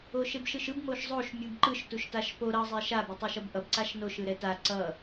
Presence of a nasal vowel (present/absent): absent